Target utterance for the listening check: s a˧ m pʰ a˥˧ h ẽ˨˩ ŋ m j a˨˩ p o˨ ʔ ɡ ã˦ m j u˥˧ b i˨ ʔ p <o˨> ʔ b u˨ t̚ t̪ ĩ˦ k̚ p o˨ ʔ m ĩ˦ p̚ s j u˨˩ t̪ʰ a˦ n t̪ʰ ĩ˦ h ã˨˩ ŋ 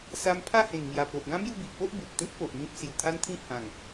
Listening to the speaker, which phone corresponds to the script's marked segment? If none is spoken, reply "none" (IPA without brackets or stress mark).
o˦